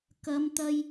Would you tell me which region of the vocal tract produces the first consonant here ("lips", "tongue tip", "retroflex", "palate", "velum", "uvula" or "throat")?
velum